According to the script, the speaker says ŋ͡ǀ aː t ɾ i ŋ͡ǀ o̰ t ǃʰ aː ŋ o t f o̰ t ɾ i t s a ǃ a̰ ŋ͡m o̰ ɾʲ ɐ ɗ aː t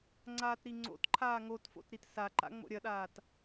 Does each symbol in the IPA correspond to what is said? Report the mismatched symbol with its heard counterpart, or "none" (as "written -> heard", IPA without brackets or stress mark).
none